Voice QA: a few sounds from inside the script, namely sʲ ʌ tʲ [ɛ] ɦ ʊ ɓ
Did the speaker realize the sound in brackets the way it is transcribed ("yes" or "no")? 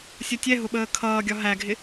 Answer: yes